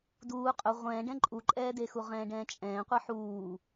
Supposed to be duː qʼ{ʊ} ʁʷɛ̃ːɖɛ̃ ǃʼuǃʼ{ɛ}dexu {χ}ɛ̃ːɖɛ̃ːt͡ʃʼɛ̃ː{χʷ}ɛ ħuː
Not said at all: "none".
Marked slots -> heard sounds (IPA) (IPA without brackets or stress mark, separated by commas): ʊ, ɛː, ʁ, qʷ